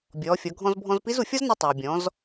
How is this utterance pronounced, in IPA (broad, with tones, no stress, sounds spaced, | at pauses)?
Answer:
bʲ ɔː˩˧ fʲ ɔ˩˧ ɡʱ ɔ̃˧ z bʱ ɔ̃˧ z p i˧˥ z u˩ fʲ ɔ˥ z n i˧ tˤ ʌː˩ bʲ ɔ̃˩˧ z